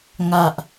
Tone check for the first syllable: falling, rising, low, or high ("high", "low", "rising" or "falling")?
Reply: low